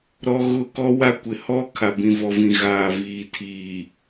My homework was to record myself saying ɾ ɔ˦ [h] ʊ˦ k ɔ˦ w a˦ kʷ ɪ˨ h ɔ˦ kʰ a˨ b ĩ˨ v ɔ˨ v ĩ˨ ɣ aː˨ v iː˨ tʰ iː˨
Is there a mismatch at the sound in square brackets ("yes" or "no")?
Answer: yes